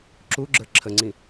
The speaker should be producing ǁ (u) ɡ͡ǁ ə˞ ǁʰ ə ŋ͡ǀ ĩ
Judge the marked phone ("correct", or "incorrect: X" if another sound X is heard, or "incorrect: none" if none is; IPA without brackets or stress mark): correct